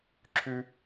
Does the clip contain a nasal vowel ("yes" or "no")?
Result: no